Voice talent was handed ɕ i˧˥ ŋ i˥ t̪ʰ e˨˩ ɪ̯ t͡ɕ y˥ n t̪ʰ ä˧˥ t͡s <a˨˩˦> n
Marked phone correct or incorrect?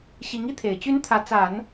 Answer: correct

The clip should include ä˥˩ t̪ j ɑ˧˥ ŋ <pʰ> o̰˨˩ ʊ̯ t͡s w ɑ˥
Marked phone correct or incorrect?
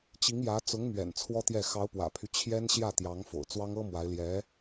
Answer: incorrect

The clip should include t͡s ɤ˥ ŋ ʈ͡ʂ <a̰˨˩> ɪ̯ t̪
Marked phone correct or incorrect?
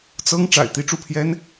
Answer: correct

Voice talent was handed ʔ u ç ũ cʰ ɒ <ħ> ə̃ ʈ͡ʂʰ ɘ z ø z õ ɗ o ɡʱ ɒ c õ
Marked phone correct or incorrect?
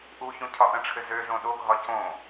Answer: incorrect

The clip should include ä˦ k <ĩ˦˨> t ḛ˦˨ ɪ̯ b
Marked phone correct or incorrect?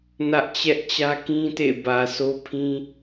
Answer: incorrect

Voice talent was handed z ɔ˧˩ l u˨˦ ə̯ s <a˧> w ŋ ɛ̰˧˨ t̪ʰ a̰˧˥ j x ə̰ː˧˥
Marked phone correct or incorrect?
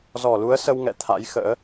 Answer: incorrect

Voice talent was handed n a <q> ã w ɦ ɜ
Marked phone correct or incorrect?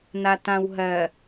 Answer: incorrect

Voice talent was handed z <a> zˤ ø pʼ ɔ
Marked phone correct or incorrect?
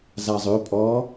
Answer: correct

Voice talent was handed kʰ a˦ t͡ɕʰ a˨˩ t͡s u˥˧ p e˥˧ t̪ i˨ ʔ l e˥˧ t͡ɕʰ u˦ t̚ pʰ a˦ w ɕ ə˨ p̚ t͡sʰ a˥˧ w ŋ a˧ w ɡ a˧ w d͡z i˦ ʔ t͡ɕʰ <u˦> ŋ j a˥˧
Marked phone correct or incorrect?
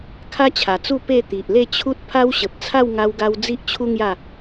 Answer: correct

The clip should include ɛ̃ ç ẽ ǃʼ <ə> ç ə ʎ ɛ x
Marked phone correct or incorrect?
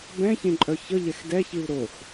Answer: incorrect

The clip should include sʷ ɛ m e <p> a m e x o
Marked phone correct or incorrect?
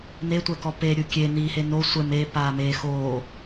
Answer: correct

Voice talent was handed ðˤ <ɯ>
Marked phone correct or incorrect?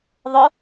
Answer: incorrect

